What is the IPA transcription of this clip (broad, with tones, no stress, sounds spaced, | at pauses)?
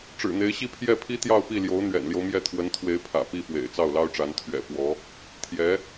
ʈ͡ʂ ɻ̩˨˩ n̪ e˧˥ ɪ̯ ɕ i˥ pʰ j ɛ˥˩ pʰ i˥ t̪ j ɑ˥˧ ʊ̯ p i˥˩ l j o˧˥ ʊ̯ n̪ ɥ ɛ̰˨˩ n l j o˦ ʊ̯ m j ɛ˥˩ t̪ʰ w ə˧˥ n t̪ʰ w e˧˥ ɪ̯ pʰ ä̰˨˩ p i˥˩ f w ḛ˨˩ ɪ̯ t͡s ɑ˥˩ ʊ̯ l ɑ˥ ʊ̯ ʈ͡ʂ a˧˥ n t̪ʰ ɥ ɛ̰˨˩ p w ɔ˧˥ | t̪ʰ j ɛ˧˥